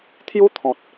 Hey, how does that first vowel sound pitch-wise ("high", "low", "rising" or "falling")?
high